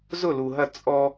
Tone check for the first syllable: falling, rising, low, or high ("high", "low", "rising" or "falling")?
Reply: falling